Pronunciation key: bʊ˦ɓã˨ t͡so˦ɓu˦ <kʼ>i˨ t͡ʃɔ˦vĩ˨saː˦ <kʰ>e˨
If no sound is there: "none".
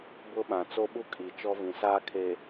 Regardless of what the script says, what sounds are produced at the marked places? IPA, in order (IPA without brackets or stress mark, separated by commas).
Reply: kʼ, kʰ